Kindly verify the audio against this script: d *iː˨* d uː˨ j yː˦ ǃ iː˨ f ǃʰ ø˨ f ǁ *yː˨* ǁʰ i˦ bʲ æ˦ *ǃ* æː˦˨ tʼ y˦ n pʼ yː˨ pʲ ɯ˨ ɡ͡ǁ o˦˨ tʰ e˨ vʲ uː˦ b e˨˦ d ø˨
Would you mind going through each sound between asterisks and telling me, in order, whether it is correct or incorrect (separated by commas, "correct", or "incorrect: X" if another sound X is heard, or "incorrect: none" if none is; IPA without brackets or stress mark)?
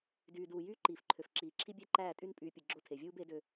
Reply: incorrect: yː˨, incorrect: iː˨, correct